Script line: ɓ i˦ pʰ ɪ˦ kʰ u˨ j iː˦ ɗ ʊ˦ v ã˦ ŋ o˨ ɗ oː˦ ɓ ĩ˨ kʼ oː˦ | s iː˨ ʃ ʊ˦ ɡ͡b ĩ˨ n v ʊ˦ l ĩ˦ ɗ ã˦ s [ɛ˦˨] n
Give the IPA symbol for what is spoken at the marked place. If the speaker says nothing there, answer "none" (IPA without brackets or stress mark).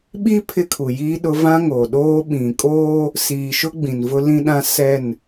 ɛ˦˨